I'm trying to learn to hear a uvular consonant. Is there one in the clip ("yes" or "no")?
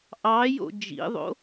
no